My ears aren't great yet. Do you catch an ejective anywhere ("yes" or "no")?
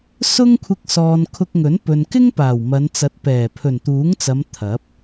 no